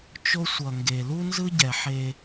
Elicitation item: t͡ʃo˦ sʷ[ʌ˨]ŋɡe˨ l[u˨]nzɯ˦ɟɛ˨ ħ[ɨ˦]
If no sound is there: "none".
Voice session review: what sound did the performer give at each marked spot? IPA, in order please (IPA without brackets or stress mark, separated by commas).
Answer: ʌ˨, u˦, e˦